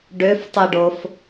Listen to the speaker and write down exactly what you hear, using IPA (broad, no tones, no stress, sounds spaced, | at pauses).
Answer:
ɖ ø f tˤ ɯ ɖ o f